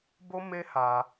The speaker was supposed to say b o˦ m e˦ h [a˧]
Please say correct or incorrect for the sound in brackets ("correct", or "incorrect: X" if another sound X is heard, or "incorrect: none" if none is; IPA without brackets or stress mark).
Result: correct